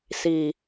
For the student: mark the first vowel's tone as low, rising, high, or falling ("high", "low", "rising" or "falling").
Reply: low